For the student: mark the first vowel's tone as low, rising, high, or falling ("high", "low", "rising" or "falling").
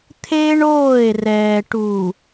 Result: high